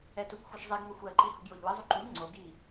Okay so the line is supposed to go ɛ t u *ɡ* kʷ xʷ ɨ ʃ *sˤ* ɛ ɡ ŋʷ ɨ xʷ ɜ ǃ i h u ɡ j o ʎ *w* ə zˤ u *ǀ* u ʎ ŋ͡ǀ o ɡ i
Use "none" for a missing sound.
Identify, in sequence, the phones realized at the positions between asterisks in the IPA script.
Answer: none, zˤ, w, ǃ

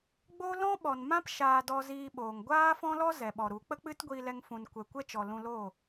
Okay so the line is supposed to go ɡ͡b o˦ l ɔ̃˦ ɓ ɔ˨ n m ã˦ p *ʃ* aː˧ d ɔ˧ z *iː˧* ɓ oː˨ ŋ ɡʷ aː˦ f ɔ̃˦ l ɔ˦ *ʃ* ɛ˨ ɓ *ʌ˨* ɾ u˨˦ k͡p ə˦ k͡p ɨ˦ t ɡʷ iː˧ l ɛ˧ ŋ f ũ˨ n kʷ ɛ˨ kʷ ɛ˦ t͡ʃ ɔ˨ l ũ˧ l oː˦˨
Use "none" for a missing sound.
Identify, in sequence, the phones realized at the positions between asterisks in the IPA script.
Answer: ʃ, iː˧, z, ɔ˨

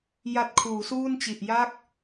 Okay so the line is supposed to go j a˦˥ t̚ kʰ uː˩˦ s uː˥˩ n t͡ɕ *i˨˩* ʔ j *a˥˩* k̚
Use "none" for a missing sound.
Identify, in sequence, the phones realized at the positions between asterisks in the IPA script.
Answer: i˨˩, a˥˩

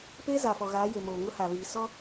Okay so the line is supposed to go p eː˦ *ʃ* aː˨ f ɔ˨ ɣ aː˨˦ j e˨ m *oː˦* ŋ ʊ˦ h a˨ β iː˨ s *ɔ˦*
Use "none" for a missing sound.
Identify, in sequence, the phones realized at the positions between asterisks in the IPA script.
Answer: z, oː˨, ɔ˦

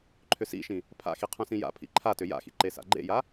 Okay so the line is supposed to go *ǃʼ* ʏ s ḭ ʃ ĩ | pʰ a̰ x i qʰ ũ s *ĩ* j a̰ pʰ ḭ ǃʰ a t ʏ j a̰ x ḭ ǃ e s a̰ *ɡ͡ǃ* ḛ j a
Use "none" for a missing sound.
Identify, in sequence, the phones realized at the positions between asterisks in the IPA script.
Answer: ǃʰ, ĩ, ɡ͡ǃ

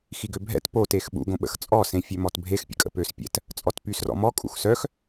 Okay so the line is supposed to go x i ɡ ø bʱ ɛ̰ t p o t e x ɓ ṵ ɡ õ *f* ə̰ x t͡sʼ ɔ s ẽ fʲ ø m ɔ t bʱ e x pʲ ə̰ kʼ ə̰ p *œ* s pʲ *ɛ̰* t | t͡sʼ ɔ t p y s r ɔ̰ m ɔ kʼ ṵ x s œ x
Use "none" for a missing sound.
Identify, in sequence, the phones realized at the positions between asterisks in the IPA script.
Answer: ɓ, ø, ɛ̰

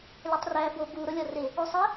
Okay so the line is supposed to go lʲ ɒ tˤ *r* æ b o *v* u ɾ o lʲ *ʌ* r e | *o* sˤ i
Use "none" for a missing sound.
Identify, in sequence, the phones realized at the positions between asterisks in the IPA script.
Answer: r, b, ɒ, o

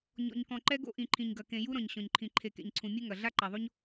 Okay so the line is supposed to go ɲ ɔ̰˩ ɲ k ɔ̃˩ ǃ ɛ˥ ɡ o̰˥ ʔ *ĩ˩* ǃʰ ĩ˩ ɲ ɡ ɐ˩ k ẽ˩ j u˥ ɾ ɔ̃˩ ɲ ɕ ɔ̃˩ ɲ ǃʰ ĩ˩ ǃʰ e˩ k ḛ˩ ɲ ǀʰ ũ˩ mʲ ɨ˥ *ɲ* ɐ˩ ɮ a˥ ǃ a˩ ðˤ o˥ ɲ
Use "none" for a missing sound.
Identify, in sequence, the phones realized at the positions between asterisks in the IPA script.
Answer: ĩ˩, ŋ

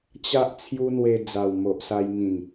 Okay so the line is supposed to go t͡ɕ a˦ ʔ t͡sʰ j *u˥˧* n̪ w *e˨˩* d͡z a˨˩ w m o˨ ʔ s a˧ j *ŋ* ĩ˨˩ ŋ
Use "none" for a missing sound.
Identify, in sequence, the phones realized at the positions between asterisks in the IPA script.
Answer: u˦, e˧, ŋ

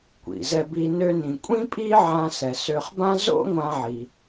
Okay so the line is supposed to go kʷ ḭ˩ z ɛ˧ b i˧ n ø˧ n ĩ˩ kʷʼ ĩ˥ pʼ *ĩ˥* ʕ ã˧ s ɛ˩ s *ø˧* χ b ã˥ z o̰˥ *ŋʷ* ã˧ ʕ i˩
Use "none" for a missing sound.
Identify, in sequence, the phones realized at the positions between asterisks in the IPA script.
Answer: i˥, ø˧, ŋʷ

